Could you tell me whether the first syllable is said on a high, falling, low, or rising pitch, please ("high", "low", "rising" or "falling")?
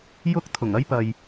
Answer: high